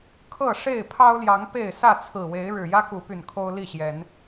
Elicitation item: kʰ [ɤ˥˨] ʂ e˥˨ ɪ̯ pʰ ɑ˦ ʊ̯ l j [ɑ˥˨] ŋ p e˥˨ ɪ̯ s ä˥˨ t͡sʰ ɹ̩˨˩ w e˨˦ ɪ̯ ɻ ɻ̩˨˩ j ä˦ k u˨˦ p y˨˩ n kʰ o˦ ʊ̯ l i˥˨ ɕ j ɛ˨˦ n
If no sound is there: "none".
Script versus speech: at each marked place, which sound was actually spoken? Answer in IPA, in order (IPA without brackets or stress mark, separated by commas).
ɤ˥˨, ɑ˨˦